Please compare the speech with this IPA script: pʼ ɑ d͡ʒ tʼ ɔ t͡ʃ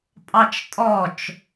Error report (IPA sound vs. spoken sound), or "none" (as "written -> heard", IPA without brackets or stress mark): d͡ʒ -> t͡ʃ